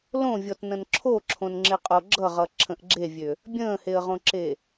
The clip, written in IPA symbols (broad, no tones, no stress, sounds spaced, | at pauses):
l õ vʲ ɔ t n ə̃ n ǁʰ o ǁʰ õ n ŋ͡ǁ ɪ qʼ o ɡ͡ǁ ʌ ʁ ʌ ǁʰ ə̃ ʔ ɡ͡ǁ e vʲ ø | bʲ ə̃ː h e ə̯ ʁ õ ǁ e